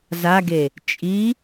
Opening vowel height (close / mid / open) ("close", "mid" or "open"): open